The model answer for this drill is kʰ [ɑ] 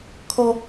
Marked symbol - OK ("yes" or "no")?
no